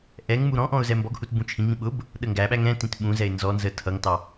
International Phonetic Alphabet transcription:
ʔɛŋmu ɾɔ̃ʔɔ̃ʊ̯ zɛmbɔɡhut bũt͡ʃʰĩŋĩ ɓʊb | ɗəŋɡæɓæ ŋɛ̃tĩt ɓũzɛɪ̯ nzɔnzə tʰʌŋtɑ

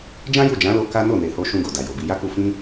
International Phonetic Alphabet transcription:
d͡ʒã˦ju˦˨d͡ʒã˨˦lo˧ ka˦ no˦˨ne˨ho˧ ʃũ˧ɡo˨ da˨jo˨bi˧ ja˦ku˧ fĩ˦

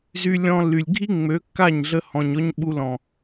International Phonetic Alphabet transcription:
zy˧lʲɔ̃˧lːy˨lʲɡʱi˦ ŋ͡mø˨˦kːa˦˨ɲɮə˧ hɔ̃˨ɲɔ˧ɲ ɓu˧lɔ̃˨

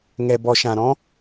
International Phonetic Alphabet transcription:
ŋɛ˨bɔ˨ʃã˨ɾɔ̃˦

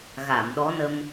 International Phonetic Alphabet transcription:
ɣa˨˩˨m ɗɔ˧˥nə˧m

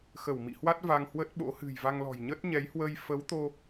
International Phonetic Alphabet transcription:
xə˧˩wmḭ˧˨hwa˦˥t̚ va˧ŋ hwə˦˥t̚ɓo̰˧˥ hɨ̤˨˩jva˧ŋlɔ̤˨˩j ɲə˦˥t̚ɲɛ˨˦jhwə˧j fə˨˦wt̪o˧

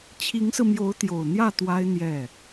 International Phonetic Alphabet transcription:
t͡ɕʰi˧˥ŋsɹ̩˧ mjo˧˥ʊ̯t̪jo˨˩ʊ̯n̪jä˥˩ t̪wa˥ɪ̯n̪jɛ˥˩

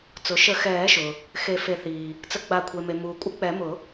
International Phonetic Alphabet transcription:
t͡sʊ˩ʃə˨˩˦xɛː˨˩˦ʃʊ˩ | xe˨˩˦fe˨˩˦θiː˩ | t͡sə˨˩˦ɡ͡ba˨˩˦kʷʰe˩me˩ muː˩kʷʼə˨˩˦k͡pɛ˨˩˦mʊ˨˩˦

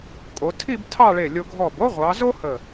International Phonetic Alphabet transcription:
kʼo˩˧tʰi˥˧b tʰɑ˥˧ɭe˧˩lʲo˧ ɡʱɔ˧˩bo˥ʁʷɑ˩˧zo˥ hə˧˩

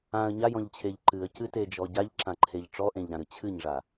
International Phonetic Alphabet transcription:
ãə̯ ɲajɔ̃ʎt͡ɕʰeʎ ǃɨə̯cɨted͡ʒɔ ɟaʎǁãǃʰeʎ ʈ͡ʂɔʔẽʎɾãɾɨ t͡ɕʰɨɲʐa

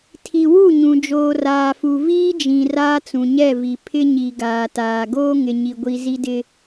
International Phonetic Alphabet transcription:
tʰi˨wu˦˨ɲũ˨ d͡ʒoː˨raː˨fu˨ viː˦d͡ʒĩ˨ raː˦t͡sũ˨ɲɛ˦˨vi˨ pʰɪ˦ɲi˨ ɡaː˨taː˨ ɡoː˦ŋɪ˨ɲi˨ɡʷi˨ zi˦dɪ˦

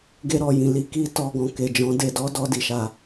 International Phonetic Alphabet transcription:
ɡe˧ɾɔ˨jĩ˨ li˧ki˦ tɔ˧ɡɔ̃˨ ke˨d͡ʒɔ̃˨˦ de˧dɔ˦ dɔ˦di˦˨ʃa˧

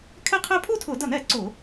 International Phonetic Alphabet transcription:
kʰɛ˥˧qʰɛ˥˧ pʰu˥˧tʰʊ˧˩˧dʌ˧˩˧n ɛ˧˩˧ ǀʊ˧˩˧

